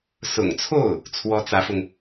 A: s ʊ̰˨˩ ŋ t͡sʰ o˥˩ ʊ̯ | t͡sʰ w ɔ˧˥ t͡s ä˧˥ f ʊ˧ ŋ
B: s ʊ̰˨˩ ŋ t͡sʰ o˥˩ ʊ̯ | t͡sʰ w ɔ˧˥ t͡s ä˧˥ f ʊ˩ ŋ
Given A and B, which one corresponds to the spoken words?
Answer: A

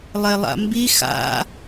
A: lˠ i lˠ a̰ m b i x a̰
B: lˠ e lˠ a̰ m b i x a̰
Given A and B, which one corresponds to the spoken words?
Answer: B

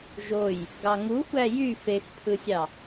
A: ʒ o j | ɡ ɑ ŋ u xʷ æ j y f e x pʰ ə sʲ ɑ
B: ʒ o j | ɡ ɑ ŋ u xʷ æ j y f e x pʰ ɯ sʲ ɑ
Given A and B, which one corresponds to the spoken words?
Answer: B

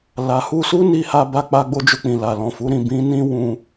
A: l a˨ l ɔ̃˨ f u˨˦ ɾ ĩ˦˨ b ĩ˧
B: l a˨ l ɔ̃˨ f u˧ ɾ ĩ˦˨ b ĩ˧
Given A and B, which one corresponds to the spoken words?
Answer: A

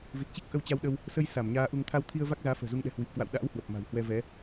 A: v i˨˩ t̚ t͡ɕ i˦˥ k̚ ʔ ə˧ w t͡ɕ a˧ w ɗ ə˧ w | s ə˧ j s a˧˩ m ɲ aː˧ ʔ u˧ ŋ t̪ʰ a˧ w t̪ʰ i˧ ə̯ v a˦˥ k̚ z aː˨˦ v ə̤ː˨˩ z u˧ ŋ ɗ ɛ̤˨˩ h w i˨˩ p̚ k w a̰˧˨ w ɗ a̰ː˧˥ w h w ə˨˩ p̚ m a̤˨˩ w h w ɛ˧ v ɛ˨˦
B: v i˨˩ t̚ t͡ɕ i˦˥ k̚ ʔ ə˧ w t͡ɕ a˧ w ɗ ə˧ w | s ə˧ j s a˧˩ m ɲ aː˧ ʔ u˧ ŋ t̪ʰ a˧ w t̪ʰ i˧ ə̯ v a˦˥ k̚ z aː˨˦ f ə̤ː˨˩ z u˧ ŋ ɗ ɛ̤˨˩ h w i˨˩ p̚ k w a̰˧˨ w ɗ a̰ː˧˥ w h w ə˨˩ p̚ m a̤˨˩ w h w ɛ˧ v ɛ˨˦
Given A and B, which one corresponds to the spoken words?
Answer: B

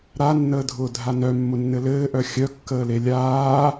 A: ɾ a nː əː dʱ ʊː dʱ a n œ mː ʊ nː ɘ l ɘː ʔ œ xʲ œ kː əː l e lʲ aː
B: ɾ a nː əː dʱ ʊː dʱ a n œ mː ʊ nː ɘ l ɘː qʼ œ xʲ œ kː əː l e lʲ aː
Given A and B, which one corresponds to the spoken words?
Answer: A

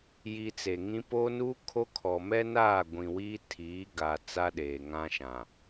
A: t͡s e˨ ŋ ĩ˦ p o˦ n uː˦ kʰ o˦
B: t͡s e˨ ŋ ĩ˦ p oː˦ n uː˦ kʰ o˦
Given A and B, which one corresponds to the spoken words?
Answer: A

